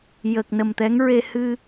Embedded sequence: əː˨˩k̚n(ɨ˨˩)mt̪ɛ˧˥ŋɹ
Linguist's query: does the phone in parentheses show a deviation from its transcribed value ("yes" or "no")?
yes